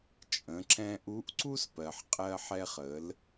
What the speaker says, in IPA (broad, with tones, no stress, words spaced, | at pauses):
t͡ʃʼə̃˩˧ ǁɛ̃˧ʔu˧˥ʔǀu˥spɜ˩ħ qʼɜ˧ħɛ˧χə˩˧l